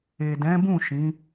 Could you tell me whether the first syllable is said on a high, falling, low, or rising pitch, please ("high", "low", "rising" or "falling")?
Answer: low